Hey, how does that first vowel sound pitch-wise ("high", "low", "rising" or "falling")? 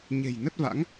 low